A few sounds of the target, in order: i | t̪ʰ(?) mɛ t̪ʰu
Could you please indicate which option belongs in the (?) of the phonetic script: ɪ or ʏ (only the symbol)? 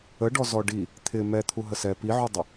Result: ɪ